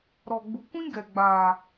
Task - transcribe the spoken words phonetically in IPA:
ɾ ɔ˨ ɡ͡b u˨ kʷ ĩ˦ ɡ ɛ˨ ɡ͡b aː˨

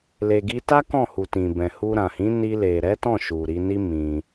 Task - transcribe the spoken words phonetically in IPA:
l e˨ ɡ i˧ t a˦ k ɔ̃˦˨ h u˨ t ĩ˨ b ɛ̃˨ h u˧ ɾ ã˨ h ĩ˨˦ n i˧ l e˨ ɾ ɛ˨˦ t ɔ̃˦˨ ʃ u˨ ɾ i˨˦ n i˦ m ĩ˧

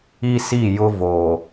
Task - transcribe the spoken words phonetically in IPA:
i˦ s i˦˨ j ʊ˦ v o˨

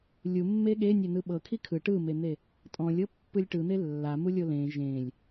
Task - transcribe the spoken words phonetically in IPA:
lʲ u mː e ɠ e nʲ ɛ n ɯ ɓ ɤ kʰ i kʰ ɯ ʈ ɯ m e n̪ e | tʼ ɔ̃ lʲ ɤ pː ɯ lʲ ʈ ɯ n̪ e lː a m u lʲ o l ẽ ʒ ẽ lʲ

